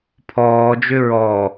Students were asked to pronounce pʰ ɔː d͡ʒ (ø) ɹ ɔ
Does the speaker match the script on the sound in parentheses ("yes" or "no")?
yes